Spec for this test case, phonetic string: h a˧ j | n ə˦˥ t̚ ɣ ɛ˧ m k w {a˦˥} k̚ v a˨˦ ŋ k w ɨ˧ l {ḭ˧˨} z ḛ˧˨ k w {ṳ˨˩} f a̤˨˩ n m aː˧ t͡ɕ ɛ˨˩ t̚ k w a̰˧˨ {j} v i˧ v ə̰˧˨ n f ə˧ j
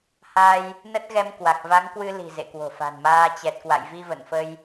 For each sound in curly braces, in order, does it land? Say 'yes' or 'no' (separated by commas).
no, no, no, yes